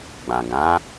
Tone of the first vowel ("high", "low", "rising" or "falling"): low